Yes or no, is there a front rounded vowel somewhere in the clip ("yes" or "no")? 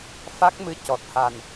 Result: no